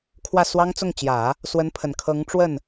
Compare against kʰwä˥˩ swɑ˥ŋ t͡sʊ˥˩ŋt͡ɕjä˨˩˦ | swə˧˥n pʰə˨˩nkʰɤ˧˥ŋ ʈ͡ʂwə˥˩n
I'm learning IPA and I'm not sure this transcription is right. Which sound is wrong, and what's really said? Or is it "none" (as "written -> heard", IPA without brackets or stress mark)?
none